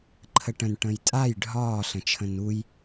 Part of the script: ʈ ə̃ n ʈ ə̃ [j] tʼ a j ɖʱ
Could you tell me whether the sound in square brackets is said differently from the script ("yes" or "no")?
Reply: no